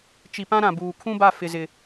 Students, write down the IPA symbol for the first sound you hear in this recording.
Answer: t͡ʃ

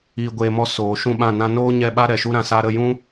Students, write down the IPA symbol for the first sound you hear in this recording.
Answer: iː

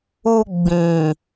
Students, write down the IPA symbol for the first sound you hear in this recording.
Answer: u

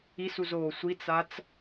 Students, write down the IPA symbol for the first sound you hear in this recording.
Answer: i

